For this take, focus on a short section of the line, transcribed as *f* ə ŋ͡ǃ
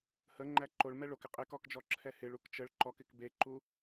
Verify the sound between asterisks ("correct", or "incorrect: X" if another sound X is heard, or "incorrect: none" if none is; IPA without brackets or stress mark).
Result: incorrect: h